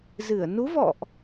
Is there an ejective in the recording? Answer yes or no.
no